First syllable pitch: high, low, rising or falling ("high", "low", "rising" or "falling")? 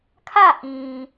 falling